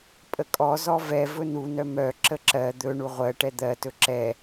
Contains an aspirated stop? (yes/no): no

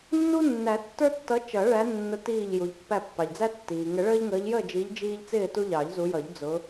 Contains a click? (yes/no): no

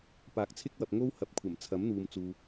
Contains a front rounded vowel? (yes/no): no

